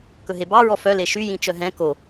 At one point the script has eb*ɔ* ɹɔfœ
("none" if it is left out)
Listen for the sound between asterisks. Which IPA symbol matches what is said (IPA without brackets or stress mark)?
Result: ɑ